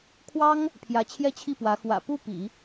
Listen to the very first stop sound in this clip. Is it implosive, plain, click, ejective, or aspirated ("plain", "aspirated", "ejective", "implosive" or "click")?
aspirated